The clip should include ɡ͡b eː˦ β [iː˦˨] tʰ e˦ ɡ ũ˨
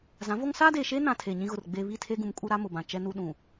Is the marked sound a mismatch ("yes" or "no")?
yes